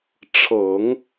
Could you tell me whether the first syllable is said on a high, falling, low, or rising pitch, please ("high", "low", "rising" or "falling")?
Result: low